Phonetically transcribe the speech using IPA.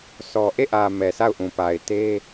sʰ ɔ˨ ʔ e˦˨ ʔ ä˨ m ɛ˨ sʰ a˦˨ ʊ̯ ʔ ũ˨ p a˨ ɪ̯ t e˦

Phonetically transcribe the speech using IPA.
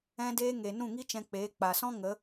ɛ̃˧ d eː˧ ŋ e˨ n ũ˦˨ ŋ i˦ t͡ʃ ɛ̃˧ k͡p eː˨˦ k͡p a˨ s ɔ̃˦ ŋ ə˨˦

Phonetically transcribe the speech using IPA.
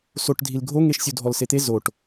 s o ʈ dʱ i l ɡʱ o ŋ e ʃ sʲ u dʱ ɔ l s e t̪ e z o ʈ

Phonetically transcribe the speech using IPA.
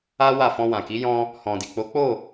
a˦ w a˦˨ f ɔ̃˧ w ã˨ k i˨˦ j ɔ̃˧ | h ɔ̃˨ d i˨ k͡p o˨˦ k͡p o˦˨

